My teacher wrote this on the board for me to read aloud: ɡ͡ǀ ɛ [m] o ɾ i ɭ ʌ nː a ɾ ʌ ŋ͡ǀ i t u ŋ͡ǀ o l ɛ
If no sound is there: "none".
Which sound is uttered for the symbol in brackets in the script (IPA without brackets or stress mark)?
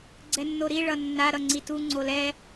nː